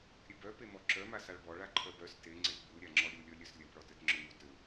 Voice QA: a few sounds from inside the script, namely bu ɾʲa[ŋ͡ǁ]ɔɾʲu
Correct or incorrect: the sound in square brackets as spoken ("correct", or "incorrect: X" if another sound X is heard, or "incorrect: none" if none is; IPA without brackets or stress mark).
correct